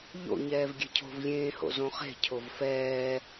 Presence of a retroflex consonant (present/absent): absent